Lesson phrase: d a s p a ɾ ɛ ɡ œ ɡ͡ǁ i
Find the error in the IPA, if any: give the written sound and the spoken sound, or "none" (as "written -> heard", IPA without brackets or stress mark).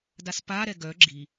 none